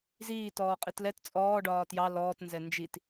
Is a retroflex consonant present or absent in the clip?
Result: present